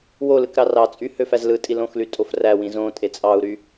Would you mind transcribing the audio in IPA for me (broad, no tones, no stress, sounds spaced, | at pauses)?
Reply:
w o l ɯ k ɾ ɑ r ɑ t͡sʼ y h ø f æ z l ɯ tʼ i l õ x l y tʼ o f r æ w ĩ z õ tʼ e t͡sʼ ɑ u̯ ɾ y